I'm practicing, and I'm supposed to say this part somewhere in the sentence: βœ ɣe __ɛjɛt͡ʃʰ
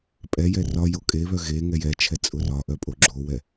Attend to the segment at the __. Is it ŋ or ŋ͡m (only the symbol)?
ŋ